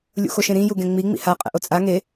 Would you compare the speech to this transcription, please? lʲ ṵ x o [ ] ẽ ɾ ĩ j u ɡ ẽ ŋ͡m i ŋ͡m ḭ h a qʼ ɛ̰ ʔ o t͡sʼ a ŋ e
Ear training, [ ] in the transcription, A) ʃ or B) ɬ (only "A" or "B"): A